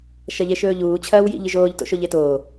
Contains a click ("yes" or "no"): no